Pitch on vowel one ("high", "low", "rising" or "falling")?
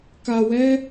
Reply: low